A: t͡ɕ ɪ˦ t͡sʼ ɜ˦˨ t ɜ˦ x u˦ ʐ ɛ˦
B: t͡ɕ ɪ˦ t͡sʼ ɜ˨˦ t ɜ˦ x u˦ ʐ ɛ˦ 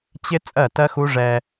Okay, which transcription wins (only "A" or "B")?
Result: A